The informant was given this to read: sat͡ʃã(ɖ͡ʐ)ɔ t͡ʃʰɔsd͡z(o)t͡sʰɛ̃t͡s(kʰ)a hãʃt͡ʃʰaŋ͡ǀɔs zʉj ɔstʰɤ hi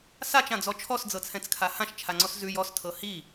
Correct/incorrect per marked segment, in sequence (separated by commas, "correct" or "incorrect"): incorrect, incorrect, correct